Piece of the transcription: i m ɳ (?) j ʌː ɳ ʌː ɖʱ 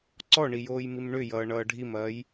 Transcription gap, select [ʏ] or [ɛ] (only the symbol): ʏ